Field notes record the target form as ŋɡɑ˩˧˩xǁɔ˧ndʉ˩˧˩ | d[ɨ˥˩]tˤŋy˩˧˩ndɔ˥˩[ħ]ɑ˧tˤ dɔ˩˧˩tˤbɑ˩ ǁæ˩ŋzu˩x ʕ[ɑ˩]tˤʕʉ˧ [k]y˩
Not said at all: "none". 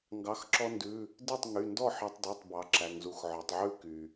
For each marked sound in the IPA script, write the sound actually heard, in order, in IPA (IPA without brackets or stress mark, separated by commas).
e˥˩, ħ, ɔ˩, k